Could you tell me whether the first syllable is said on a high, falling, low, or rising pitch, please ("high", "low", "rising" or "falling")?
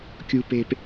low